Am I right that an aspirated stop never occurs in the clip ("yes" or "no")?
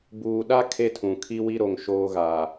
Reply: no